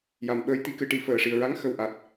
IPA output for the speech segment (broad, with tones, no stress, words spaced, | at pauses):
ja˨˩mɓəː˧jt̪i˧ kɨ˧ʈi˨˩ fəː˨˩ʂi˨˩ə̯ɹa˧˥ŋ xə˨˩wʔa˨˩t̚